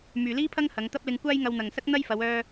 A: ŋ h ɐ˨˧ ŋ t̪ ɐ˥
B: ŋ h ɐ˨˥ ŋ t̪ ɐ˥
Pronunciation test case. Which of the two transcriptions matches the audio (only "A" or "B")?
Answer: A